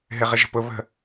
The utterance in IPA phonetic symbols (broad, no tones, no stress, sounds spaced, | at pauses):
ɦ ɪ ʁ ɪ ʒ ə̤ p ʊ β ə̤